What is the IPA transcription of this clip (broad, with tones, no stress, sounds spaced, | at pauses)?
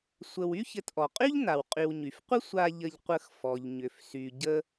sʷ ə˨ w y˥ ç ɘ˨ t ʔ ɔ˩ qʼ y˥ ʎ n a˩ w qʼ y˨ w ɲ y˩ f qʷ ə˥ sʷ a˨ ʎ ə˨ ʎ qʷ ə˨ x f ɔ˩ ʎ ɲ ʏ˩ f s y˩ ɟ ə˨